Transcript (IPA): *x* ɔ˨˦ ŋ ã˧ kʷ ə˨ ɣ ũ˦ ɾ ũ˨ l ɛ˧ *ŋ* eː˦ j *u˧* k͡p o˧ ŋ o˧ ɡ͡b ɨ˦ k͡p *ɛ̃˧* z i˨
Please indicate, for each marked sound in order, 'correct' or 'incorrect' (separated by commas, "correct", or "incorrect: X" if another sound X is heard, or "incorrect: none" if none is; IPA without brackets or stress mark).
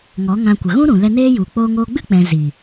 incorrect: ŋ, incorrect: n, incorrect: u˨, correct